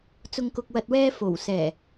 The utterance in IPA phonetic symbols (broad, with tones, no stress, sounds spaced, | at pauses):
t͡s ʊ˨ ŋ k ʊ˨ k̚ w ɐ˨ t̚ w ɛː˧ f o˨˩ w s ɛː˨˩